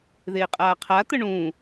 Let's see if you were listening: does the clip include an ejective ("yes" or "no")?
yes